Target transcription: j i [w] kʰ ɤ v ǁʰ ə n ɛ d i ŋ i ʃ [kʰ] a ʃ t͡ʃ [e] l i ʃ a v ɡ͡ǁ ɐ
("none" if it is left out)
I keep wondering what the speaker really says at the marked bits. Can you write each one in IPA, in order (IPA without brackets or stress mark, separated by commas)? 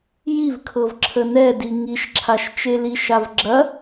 v, ǁʰ, e